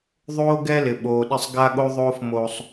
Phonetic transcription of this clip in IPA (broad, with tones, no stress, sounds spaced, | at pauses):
ðˤ oː˦ ɡ ɛ˦ l ɪ˨ ɓ oː˨ ɗ ɪ˦˨ sˤ ɡ a˦ ɠ o˦ ðˤ oː˦ f m o˦ sˤ